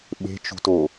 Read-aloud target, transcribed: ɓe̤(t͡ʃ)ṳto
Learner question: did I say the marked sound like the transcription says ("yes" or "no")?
yes